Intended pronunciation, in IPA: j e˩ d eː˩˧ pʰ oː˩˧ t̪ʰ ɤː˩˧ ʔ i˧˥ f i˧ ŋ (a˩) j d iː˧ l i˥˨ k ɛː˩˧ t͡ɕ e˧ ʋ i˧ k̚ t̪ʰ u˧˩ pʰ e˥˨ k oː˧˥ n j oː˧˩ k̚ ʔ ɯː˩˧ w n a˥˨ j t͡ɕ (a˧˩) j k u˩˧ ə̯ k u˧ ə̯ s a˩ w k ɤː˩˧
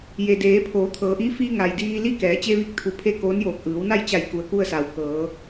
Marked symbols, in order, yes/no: yes, yes

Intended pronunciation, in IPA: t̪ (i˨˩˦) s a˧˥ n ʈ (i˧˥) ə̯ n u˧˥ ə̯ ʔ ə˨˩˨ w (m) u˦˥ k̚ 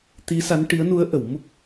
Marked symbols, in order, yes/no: no, yes, yes

